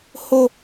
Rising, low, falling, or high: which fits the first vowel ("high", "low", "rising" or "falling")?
high